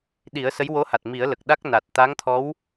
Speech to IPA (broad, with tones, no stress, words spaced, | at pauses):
ɗi˨˩˦ə̯ sə˧˥jwo˧˥ha˨˩t̚ mi˨˩˦ə̯ lə˨˩k̚ɗa˦˥k̚ na˨˩t̚ t̪a˧˥ŋt̪ʰɔ˧˥w